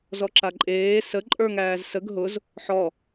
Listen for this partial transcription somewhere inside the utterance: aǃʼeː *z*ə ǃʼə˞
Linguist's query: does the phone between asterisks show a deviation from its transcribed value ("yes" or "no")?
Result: yes